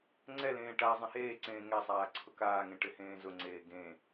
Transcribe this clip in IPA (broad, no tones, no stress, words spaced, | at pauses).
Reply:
ŋ͡ǀɛlẽː ʈa zˤẽheːǀẽː ŋɛsˤaː ǀʰʊkaːŋẽ ʈɪhẽːzʊŋ͡ǀeː ɡẽ